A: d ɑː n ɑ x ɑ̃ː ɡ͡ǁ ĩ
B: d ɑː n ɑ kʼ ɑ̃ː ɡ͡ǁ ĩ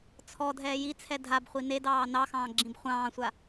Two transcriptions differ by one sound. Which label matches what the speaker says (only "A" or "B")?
A